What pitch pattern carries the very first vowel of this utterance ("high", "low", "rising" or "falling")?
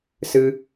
high